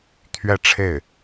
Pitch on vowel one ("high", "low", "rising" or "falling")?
falling